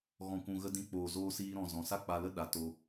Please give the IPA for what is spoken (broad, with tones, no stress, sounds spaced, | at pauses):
ɣ ɔ̃˨ kʷ ũ˨ ɣ ə˧ d ĩ˧ k͡p oː˨ z oː˧ s iː˧ ɾ ɔ̃˨ z ɔ̃˨ s a˦ k͡p a˧ l ə˦ ɗ a˨ t o˧